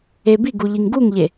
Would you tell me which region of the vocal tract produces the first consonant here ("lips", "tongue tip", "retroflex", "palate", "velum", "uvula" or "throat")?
lips